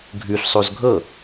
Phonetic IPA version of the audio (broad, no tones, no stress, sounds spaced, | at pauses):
ɡʱ ʉ ɬ sˤ o z ɡʱ ɤ